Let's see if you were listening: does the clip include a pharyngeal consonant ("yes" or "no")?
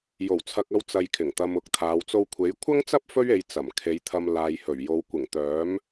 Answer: no